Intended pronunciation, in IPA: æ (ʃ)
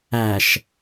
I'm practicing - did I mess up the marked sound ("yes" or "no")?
no